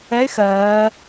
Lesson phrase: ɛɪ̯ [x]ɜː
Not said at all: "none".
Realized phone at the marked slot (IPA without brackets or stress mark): x